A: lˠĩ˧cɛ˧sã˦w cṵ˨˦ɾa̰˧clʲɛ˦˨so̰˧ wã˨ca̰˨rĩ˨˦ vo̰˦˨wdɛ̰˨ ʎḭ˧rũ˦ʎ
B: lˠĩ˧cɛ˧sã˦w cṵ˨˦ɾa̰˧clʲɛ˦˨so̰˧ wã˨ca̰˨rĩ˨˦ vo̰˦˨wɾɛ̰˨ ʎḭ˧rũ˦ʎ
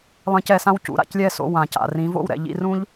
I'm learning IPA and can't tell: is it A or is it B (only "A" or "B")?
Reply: B